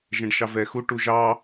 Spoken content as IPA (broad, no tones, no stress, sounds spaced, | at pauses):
ʒ ɛ̃ ɖ ʃ ɑ v ɛ x u ʈ u ʒ ɑ